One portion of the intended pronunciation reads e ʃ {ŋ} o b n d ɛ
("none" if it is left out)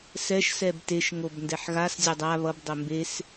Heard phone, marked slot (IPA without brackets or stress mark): ŋ